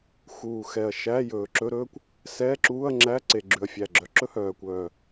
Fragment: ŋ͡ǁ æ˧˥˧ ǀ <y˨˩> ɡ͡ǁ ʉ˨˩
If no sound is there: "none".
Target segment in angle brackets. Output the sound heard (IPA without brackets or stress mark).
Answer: e˨˩